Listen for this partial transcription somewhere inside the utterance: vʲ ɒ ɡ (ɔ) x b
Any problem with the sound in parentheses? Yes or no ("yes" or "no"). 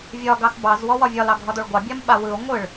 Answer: yes